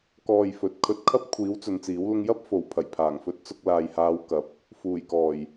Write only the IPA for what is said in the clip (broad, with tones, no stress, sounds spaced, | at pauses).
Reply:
k ɔː˧ j f ɵ˨˥ t̚ kʰ ɵ˨˥ t̚ kʰ ɐ˥ p̚ kʷʰ iː˨˥ w t͡s ɵ˨˧ n t͡s iː˨˥ w l ʊ˥ ŋ j ɐ˥ p̚ f o˨˩ w pʰ ɐ˨˩ j pʰ aː˨˩ ŋ f ɵ˧ t̚ t͡s ʊ˧ k̚ l aː˨ j h aː˨˧ w k ɐ˨˥ p̚ | f uː˨˩ j k ɔː˨˩ j